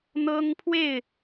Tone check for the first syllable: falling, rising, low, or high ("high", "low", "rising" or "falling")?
high